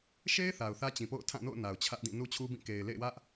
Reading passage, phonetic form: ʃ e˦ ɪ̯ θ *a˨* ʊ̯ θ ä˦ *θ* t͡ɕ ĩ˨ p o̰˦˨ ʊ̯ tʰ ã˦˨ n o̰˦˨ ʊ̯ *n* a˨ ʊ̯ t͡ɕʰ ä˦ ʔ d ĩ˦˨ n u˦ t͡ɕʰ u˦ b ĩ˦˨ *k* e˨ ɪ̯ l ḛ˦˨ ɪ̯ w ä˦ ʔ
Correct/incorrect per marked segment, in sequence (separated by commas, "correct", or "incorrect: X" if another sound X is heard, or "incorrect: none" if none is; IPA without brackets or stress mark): correct, incorrect: none, correct, correct